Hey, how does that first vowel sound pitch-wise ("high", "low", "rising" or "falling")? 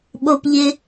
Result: high